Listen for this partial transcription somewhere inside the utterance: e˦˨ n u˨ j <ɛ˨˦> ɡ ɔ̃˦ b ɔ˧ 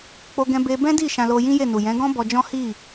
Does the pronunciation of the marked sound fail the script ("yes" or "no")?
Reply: yes